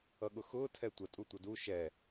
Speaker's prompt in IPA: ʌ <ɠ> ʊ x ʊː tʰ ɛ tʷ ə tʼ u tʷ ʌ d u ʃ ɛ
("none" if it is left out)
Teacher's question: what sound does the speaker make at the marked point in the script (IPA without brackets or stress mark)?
ɠ